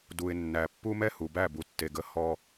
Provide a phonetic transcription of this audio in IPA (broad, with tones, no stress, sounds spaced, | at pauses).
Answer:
d u˨ ɪ̯ nː æ˨ pː u˦ m ɛ˦ h u˨ b æ˦˨ b u˨ tː e˨ ɡ ə˦ h ɔ˦